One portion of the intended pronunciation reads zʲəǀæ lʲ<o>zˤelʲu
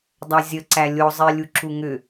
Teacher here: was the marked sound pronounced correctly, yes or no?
yes